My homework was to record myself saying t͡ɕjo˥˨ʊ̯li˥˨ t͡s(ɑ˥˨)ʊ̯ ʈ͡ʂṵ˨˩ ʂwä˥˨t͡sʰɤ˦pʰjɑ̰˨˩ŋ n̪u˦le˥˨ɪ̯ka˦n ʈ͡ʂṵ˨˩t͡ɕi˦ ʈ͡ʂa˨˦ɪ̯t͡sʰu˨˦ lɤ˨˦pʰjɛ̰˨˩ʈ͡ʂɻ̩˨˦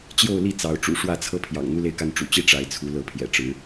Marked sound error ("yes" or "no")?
yes